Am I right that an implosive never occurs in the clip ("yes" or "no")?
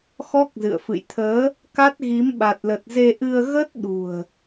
no